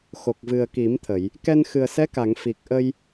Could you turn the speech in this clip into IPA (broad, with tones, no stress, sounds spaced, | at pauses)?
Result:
x o˨˩ k̚ v ɨ˨˩ ə̯ k i˨˩˦ m t̪ʰ ə˨˩˨ j | k ɛ˧ n x ɨ˨˩ ə̯ s ɛ˧˥ k a˨˩˨ ŋ f i˨˩ k̚ ʔ ə˧ j